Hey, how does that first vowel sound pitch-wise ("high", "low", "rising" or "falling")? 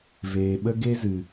low